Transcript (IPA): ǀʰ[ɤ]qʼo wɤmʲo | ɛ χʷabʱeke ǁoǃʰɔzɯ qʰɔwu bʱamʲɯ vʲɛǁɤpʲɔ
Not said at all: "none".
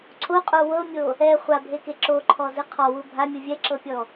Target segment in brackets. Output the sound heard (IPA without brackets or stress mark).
o